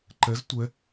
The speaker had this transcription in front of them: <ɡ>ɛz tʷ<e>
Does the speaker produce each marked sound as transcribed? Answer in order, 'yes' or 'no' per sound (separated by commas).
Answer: no, no